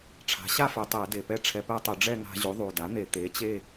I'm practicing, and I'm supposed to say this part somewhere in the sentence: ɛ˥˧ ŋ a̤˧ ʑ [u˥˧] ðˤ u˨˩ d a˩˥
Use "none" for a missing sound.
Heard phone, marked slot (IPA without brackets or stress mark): u˩˥